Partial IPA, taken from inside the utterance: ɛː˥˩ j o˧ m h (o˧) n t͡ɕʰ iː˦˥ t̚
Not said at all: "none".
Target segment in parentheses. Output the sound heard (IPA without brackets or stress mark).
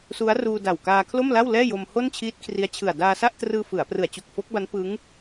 o˥˩